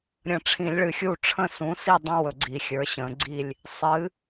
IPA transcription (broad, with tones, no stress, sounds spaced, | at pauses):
ɾʲ ə̃˨˩˦ ʈ͡ʂʰ ĩ˨˩˦ lʲ ɭ ɨ˨ xʲ u˥˨ ʈ͡ʂʰ ə̃˥˨ s ũ˩˥ s i˥˨ dˤ ə̃˦ w ɵ˨ ɡ͡ǀ i˨˩˦ xʲ ə˞˩˥ ɕ ə̃˨˩˦ ɡ͡ǀ i˥˨ lʲ | sˤ ɨ˩˥